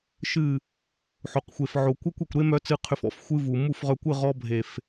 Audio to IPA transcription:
ʃ ɨ˦˨ | ħ o˨ q xʷ e˨ f ʕ o˨ kʷ œ˦ kʷ e˨ kʷ ɾ e˦ m œ˧ t͡s ɨ˧ qʰ ʏ˧ f ɔ̰˦ f xʷ ɨ˦ v u˨ m u˦˨ f ʁ œ˧ kʷ ɨ˦˨ ʁ ɔ˧ bʱ e˨ f

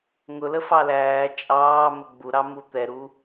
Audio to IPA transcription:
ŋ ʊ l ə f ɑ l æː t͡ʃʼ ɑː m ə ɡ͡b u ɾ ɑ m u t̪ ɛ ɾ u

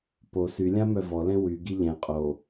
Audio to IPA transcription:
p o s y lʲ ã m œ v ɔ l ɛ̃ w y ɡ i ʎ ɛ̃ qʼ o

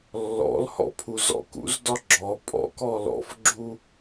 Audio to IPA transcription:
lː ɔ̰ l h ɔ̰ pʰ u z ɔ̰ k ṵ z d ɒ ɡ͡ǁ ɔ pʼ ɔ̰ k ɔ l ɔ̰ f ɡ͡ǁ u

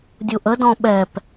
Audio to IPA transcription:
dʲ u ʔ ə d ɔ̃ ɓ ɛ p

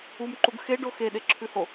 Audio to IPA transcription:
u m ǃ u ɡ x e ɖ o x e ɗ e ǁʰ ʉ h o

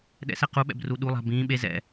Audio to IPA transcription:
ɗ ɛ̰ s ɛ q u ɓ ɛ̰ b r u ɗ u lˠ a̤ b ĩː ɓ e z ɛ̰

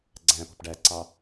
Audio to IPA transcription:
ɡ͡ǀ æ̃ p ɔ̤ p ɖ æ ǀ ɑ

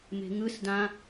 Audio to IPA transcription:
m e̤ ŋ ɯ s d ã

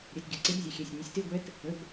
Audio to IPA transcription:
ɾʲ ɛ˩˧˩ t ɡʲ ə˩˧˩ ǀ e˧˥ b zʲ ə˩˧˩ xʲ ɛ˩˧˩ sʲ nʲ ʊ˩˥ sʲ t e˧˥˧ ɡʷ ɛ˧˥ t | ə˩˧˩ b

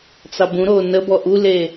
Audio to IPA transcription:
t͡s ɑ b ũ ɾ o n ə b ɔ ʔ u l e

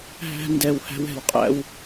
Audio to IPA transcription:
ɦ æ̤˦ n d ɛ˧ w h æ̤˦ w ɛ̤˨ w qʼ æ̰˦ w

